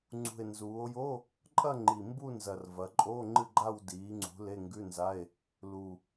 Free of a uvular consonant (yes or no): yes